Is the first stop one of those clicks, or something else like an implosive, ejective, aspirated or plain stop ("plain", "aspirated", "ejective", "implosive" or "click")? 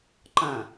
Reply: click